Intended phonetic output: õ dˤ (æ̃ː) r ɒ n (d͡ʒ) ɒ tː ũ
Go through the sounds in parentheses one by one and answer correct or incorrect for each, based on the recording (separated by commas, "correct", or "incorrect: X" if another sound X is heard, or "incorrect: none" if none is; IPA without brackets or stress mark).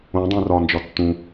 incorrect: æ̃, correct